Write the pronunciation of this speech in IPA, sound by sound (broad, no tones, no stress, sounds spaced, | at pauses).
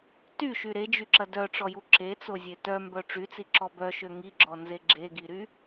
t y ʃ y ɾ e d͡ʒ y ǁ ɐ d œ ʈ͡ʂ ɔ j u ǁ e t͡s o zʲ e t œ m b œ ʈ͡ʂ y t͡s i ǁ ɔ b œ ʃ ø ŋ i ɡ͡ǁ ɔ n z e ɡ͡ǁ e ɡ i ɾ y